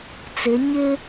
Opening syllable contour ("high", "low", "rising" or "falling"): rising